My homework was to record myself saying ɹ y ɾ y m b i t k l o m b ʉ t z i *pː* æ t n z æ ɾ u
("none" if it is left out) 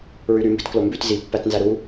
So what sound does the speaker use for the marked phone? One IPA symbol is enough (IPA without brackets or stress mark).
pː